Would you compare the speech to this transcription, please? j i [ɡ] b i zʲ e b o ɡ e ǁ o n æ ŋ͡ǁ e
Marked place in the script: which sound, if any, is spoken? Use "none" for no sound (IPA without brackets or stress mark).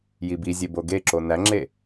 none